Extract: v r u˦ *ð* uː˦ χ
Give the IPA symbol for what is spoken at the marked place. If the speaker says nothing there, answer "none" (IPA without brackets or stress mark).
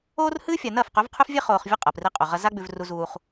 z